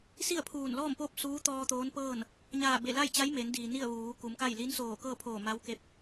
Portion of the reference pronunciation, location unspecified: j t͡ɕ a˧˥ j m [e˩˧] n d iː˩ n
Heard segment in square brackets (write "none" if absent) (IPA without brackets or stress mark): e˩˧